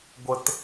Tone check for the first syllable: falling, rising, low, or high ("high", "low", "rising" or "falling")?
low